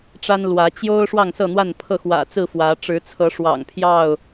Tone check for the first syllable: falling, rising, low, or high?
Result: high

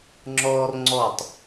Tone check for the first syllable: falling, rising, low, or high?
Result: high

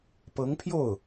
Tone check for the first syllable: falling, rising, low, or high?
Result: rising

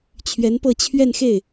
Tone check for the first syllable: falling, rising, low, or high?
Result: rising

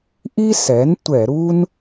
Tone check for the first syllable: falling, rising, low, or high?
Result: high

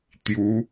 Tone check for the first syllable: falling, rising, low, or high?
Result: rising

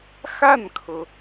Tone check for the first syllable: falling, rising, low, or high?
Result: falling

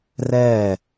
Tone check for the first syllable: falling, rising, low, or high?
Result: falling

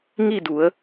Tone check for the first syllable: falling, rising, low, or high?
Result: falling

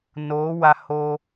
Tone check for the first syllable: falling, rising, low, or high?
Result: rising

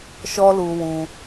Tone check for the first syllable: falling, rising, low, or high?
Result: high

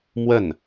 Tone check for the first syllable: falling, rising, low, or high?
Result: falling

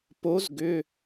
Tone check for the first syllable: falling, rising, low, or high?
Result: rising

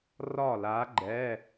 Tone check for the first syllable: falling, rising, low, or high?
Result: falling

